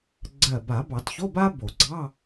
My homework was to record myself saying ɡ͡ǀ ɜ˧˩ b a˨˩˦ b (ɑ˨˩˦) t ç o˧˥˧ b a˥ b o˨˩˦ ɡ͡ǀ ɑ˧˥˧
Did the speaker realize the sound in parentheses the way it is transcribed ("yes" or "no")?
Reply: yes